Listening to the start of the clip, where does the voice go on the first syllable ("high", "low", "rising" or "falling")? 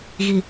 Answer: low